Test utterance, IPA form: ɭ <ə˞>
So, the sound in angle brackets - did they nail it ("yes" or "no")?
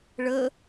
no